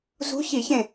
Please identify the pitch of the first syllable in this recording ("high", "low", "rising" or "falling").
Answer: rising